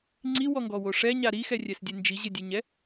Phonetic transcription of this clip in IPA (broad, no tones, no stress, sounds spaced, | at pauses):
ŋ͡ǀ i w ɔ ŋ ɡ ɔ w o ʂ ɛ ɲ a ɾ i x ɛ rʲ ɛ s dʲ e n d͡ʒ i ʑ ɪ dʲ e ɲ ɛ